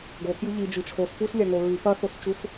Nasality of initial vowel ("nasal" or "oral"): oral